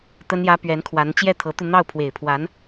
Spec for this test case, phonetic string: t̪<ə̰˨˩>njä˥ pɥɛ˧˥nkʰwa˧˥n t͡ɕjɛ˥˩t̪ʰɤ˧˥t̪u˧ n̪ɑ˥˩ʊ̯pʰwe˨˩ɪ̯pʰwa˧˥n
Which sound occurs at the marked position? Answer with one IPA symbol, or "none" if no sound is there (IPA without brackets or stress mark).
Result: ə˥